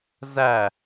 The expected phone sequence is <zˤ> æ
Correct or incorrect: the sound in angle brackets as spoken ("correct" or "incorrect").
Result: incorrect